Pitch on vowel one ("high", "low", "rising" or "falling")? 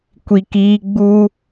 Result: low